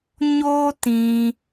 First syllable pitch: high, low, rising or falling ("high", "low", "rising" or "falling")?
high